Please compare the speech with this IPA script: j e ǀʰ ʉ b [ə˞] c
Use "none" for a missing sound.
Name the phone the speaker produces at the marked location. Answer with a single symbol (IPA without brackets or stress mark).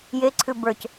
ə˞